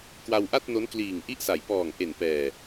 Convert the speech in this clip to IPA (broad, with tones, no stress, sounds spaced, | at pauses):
k w a˧ w ʔ a˥˩ t̚ n o˦˥ n k l iː˨˩ ŋ ʔ i˥˩ ʔ s a˨˩ j p ɔː˨˩ ŋ ʔ e˨˩ n p ɛː˨˩